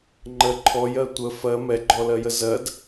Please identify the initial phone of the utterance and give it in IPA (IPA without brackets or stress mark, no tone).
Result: ŋ͡ǃ